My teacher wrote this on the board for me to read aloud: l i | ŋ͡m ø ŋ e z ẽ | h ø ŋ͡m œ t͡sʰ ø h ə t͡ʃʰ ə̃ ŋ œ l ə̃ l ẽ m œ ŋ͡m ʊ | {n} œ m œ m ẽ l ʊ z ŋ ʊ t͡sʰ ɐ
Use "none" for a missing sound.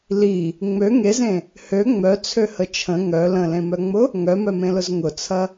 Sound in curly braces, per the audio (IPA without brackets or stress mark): ŋ